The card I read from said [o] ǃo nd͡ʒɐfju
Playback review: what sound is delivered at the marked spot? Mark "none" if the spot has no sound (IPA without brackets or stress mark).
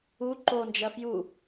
u